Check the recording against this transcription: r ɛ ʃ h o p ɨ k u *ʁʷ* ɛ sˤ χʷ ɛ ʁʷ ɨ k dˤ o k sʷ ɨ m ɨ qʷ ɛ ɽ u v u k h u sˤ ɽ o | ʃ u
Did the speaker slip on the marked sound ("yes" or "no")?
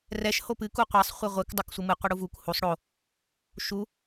yes